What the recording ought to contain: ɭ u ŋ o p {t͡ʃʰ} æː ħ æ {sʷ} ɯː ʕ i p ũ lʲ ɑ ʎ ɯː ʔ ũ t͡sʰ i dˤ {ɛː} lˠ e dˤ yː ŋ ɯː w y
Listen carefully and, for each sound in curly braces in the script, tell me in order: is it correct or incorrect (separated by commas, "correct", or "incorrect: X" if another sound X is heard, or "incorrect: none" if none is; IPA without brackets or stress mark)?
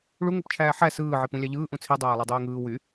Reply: correct, incorrect: s, incorrect: æː